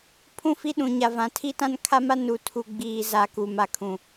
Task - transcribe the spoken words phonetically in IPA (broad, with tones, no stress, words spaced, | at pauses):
pʰũ˦ fi˦ɗũ˨ ɲa˨vã˨ tʰi˦ tã˦nkʰa˦ma˦ nu˨tʰu˨ɡ͡biː˨zaː˨ kuː˨ma˨kʰũ˨